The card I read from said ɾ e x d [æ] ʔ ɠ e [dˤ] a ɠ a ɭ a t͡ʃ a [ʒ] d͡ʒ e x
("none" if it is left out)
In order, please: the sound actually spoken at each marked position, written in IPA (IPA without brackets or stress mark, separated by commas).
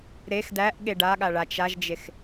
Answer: æ, ɖ, ʒ